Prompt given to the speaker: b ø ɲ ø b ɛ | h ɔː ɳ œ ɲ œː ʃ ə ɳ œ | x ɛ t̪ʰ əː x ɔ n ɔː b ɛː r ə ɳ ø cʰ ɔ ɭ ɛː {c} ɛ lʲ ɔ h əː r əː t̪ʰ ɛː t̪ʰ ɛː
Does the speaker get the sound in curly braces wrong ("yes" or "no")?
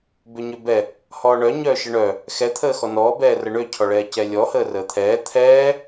no